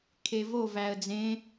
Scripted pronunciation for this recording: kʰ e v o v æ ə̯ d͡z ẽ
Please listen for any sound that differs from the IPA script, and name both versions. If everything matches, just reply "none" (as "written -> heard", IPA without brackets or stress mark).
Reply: none